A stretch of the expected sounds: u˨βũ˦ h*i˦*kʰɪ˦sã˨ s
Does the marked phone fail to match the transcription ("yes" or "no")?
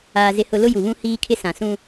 yes